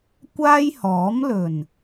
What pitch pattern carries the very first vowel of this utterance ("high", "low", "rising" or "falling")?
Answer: high